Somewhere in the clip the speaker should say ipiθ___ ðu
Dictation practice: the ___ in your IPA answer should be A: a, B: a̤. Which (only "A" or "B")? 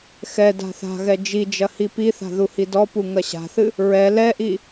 B